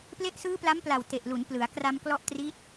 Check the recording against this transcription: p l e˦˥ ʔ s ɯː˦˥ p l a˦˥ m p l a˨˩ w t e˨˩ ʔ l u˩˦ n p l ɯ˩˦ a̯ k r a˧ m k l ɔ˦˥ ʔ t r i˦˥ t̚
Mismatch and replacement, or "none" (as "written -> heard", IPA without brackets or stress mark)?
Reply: none